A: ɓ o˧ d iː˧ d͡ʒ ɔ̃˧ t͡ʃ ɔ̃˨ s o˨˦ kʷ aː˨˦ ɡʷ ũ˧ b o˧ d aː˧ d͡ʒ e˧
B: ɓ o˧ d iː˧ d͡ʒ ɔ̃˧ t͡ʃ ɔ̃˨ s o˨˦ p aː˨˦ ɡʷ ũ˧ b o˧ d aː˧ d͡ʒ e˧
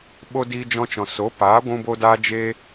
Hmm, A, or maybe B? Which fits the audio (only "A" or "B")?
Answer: B